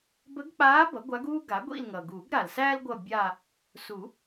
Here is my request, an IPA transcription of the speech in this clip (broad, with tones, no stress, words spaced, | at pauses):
bə˧˥ɡk͡paː˧˥ bʌ˩˥ɡʷa˧˥ɡuː˥ɡa˩˥ ɡʷḭ˦˨lŋʌ˩ ɡuː˨˩˦ɡɾa˩lsæː˥l ɡʷʌ˦˨bʲa˦˨ | su˨˩˦